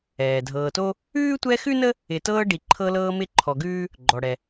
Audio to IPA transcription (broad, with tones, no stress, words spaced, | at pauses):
ɛː˩dʱɤː˨to˥ | ʉː˥tʷɛ˦xʉ˥nə˥ | ɪ˨tɤː˦ ɖi˨ǃʰɤ˦lɤː˦mɪ˦ ǃʰɔ˨ɡʉː˥ | ɡ͡ǃɔ˩ɽɛ˩